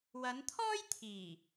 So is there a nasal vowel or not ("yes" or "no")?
no